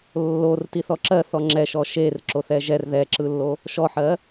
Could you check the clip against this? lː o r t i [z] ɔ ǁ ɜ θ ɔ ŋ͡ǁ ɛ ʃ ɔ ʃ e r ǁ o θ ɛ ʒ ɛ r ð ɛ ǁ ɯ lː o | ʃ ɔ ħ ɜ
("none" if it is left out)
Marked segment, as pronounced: θ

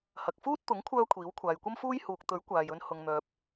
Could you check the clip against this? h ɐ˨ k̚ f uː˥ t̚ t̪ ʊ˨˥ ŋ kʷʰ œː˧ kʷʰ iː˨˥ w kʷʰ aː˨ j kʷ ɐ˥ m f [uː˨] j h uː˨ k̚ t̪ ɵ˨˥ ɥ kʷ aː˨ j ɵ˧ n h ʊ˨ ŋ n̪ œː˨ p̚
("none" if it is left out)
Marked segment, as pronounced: uː˥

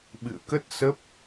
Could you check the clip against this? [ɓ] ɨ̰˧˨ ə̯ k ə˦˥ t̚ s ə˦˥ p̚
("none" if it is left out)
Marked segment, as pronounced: ɓ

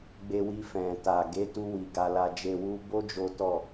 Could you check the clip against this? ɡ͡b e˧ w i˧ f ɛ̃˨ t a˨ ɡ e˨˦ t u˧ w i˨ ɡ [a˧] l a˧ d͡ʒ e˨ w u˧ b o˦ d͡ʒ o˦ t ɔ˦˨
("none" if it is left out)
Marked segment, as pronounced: a˧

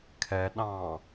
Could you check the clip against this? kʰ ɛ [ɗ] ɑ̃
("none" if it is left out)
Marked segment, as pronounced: ɗ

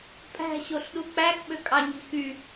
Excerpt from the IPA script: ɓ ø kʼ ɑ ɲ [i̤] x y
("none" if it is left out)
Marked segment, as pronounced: i̤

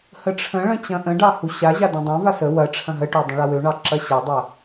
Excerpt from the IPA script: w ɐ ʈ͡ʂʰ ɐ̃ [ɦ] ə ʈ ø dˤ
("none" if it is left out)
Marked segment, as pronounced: ɦ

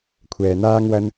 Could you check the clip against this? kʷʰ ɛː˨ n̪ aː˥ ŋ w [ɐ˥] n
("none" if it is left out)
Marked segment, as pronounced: ɐ˥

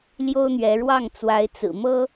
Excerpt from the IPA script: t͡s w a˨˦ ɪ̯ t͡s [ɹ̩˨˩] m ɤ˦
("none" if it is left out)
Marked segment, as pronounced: ɹ̩˨˩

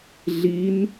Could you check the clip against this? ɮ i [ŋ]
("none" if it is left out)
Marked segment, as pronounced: n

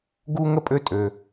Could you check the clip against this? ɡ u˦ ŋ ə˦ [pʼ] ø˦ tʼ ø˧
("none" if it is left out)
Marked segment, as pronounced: pʼ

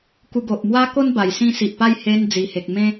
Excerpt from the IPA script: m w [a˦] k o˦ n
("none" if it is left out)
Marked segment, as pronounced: a˦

